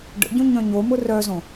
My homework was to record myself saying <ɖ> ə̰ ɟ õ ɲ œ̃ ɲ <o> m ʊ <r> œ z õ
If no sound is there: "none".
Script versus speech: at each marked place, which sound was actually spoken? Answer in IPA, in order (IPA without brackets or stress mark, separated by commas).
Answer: ɖ, o, r